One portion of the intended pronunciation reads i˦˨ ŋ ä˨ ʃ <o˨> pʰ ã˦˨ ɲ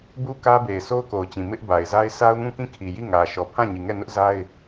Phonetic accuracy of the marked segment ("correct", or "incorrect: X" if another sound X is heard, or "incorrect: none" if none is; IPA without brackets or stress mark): incorrect: ɔ˨